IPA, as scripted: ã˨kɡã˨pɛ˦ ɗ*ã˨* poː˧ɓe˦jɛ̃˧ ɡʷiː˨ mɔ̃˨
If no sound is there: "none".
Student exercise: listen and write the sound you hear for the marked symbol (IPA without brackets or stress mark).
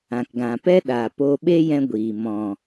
a˨